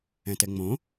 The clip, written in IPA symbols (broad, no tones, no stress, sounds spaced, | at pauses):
ɛ̃ t ɛ ŋ͡m õ